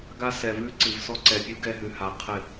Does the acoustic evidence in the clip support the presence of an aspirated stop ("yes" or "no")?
yes